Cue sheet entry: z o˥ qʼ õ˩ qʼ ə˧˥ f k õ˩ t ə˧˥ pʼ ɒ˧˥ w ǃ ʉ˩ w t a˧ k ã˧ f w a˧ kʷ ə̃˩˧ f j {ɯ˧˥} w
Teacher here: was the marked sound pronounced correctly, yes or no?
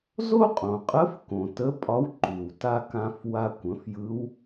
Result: yes